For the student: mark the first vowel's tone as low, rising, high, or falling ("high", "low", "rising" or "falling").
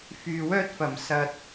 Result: low